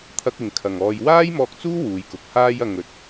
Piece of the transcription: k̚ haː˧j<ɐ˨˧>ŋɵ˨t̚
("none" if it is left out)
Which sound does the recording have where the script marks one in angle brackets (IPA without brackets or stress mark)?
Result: ɐ˨